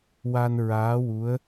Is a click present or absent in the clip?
absent